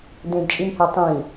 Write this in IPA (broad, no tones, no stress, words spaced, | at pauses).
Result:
d̪ẽdt͡ʃʼimhe tˤĩ